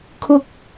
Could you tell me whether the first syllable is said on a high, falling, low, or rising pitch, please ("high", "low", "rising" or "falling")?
high